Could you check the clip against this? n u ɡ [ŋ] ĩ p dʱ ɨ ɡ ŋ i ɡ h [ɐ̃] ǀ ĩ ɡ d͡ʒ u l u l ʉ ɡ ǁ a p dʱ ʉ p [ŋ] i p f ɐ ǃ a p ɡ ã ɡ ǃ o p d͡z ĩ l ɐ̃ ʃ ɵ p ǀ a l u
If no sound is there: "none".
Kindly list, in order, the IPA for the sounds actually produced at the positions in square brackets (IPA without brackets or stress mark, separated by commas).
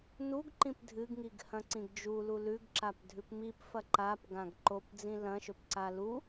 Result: ǃ, ɐ̃, m